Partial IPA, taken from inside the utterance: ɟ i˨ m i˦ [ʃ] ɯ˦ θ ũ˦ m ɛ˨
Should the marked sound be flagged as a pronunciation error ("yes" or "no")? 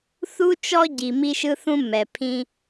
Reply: no